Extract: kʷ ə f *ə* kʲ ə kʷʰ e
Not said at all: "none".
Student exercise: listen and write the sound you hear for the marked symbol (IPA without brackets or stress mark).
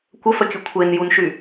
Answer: ə